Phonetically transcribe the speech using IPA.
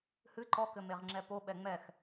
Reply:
h ɨ ǃ ɔ k ɘ m e ʁ ŋ͡ǁ ɛ p o ɓ ɛ ŋ͡m ɛ x

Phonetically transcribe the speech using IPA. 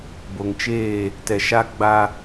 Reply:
b o˨ ŋ t͡ʃ eː˦˨ | t ɛ˨ ʃ a˦ ɡ͡b a˦

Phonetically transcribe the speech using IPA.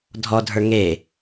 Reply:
dʱ ɔ dʱ ə˞ ŋ e

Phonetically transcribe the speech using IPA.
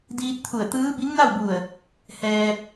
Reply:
d iː˧ t̚ t̪ʰ u˧˩ ə̯ t̪ ɯː˧˥ b i˧˥ ŋ n a˥˨ w b u˧˩ ə̯ | h ɛː˧ p̚

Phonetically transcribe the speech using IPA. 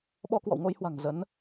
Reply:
ɓ ɔ˧ k w ɔ̰˧˨ w ŋ o˧ j h w a̤˨˩ ŋ z ə˨˦ n

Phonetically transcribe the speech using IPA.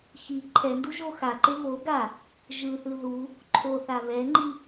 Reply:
x i ǃʰ ɛ n d u ʒ o x a ǃ e β o ɡ a | ʒ ɯ θ ɯ ð u | ǃʰ o θ a β ɛ ŋ͡ǃ i

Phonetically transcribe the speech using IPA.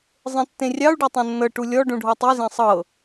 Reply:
zˤ ẽ tː ẽ rʲ ɑ u̯ ɖ ɤ tˤ ẽ nː ɤ ʈ u lʲ ɔ ɖ ũ ɖʱ ɔ tˤ i z ẽ sˤ ɤ

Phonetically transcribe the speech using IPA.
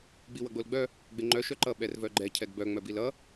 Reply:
ɡ͡b i w ʌ ɡ͡b o l ɡ͡b œ | ɡ͡b e ŋ͡ǃ œ ʃ œ ǃ ʌ ɓ ɛ r v œ ɡ͡ǃ ɛ cʰ ɛ ɡ b œ ŋ͡m œ b i l ʌ

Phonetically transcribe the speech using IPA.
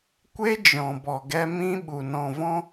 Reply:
kʷ e˦ d͡ʒ ɔ̃˨ b ɔ˨ ɡ ɛ˧ m ĩ˦ ɓ u˨ n ɔ̃˨ v ɔ̃˧

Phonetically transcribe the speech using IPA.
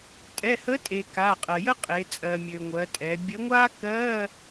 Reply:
tʼ ɛ˩˧˩ h ə˨˥ tʼ e˩ k a˩˧˩ qʼ ɜ˩ j ə˥ qʼ e˩˧ t͡sʼ ɜ˩ mʲ ø˩ ŋʷ ɜ˩˧ tʼ ɛ˩˧ bʲ ə˨˥ ŋʷ a˥ k ɜ˧˥˧

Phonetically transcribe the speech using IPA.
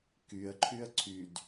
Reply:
k y ə̯ ǃʰ y ə̯ ǀʰ y d

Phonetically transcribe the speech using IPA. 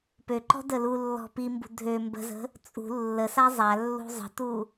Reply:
p ø ǃ ɔ̤ d ə l u lː ɔ̤ p i m b ṳ dʱ ø m b ə̤ z ə̤ | t͡sʼ ṳ lː ə s a zˤ a lː ṳ zˤ ə̤ t u

